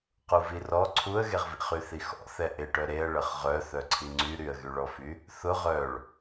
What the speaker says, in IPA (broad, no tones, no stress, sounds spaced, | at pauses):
q u v i r ɔ ǀʰ u ə̯ ɣ e ʁ v ḭ χ y θ i x ɔ̰ θ ɛ ʔ ɪ ʈ œ ɾ e ə̯ ɭ ə χ ʁ œ θ œ ǀʰ i ŋ͡ǀ y ɾ y ə̯ ɣ y ɭ ɔ f y | θ ʊ ʁ œ ɭ